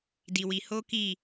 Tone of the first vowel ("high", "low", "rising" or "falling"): low